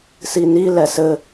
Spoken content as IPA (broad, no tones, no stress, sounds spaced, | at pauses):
s i n i l ɛ s ɘ